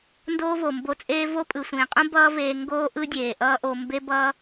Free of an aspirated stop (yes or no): yes